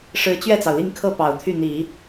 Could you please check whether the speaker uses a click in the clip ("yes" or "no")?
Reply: no